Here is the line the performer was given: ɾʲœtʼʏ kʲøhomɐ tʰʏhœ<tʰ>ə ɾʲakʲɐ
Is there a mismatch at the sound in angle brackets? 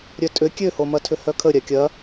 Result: yes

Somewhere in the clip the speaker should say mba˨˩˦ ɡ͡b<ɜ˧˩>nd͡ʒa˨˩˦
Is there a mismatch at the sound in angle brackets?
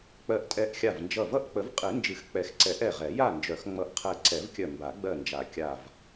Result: no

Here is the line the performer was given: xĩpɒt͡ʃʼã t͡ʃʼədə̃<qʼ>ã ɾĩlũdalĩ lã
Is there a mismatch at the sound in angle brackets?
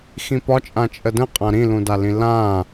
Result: no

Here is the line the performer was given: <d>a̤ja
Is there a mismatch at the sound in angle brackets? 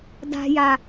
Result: no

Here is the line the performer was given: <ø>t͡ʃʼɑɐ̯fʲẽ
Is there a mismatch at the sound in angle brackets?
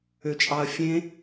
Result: no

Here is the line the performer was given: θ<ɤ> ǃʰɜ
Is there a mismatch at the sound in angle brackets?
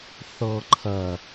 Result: no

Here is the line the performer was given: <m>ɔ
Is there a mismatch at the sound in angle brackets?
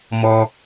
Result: no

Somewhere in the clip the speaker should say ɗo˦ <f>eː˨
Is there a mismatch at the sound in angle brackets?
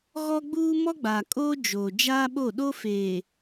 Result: no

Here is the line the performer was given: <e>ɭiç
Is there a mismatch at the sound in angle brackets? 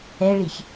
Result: yes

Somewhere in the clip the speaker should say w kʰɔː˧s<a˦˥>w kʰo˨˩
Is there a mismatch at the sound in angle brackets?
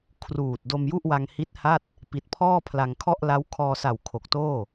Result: yes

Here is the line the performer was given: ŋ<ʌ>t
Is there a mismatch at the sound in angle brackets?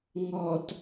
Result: yes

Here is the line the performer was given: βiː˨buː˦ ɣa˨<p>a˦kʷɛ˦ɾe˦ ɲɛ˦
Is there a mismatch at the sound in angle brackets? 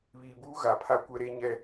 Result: yes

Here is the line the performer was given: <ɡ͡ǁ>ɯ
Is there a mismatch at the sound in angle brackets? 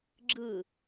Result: no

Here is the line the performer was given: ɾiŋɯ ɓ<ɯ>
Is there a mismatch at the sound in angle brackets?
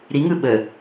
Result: yes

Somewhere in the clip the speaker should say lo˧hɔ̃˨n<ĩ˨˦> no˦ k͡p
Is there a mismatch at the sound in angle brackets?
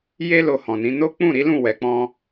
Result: no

